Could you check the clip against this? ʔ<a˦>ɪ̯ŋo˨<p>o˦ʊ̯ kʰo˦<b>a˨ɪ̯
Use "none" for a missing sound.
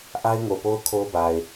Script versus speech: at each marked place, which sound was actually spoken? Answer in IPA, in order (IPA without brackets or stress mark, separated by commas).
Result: a˦, p, b